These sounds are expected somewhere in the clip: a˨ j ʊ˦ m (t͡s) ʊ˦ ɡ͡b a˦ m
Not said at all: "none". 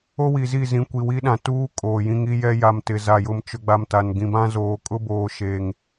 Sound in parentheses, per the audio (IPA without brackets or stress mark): t͡ʃ